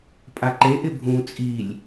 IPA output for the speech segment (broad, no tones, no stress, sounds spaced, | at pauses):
pʼ a ǃ e ʔ ɪ bʱ ũ t͡sʼ i lʲ